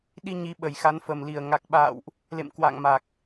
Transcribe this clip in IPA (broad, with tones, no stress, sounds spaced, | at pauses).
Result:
ɗ i˧ ɲ i˨˦ ɓ ə˨˩ j x a˨˦ n f ə˨˩ m l i˨˩ ə̯ ŋ a˨˩ k̚ ɓ a̰ː˧˨ w ʔ | l ḛ˧˨ m k w a̰ː˧˨ ŋ m a˨˩ k̚